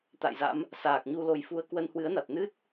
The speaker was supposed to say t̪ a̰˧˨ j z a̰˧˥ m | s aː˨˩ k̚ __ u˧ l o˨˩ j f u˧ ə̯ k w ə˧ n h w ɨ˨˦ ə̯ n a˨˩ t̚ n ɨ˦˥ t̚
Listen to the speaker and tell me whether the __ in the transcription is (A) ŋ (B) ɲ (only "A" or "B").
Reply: B